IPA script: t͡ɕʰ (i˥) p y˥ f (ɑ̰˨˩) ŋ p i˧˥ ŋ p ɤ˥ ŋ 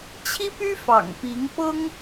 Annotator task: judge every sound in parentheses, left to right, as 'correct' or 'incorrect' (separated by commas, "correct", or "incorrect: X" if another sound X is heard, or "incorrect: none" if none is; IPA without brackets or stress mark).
correct, correct